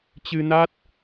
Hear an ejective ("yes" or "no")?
no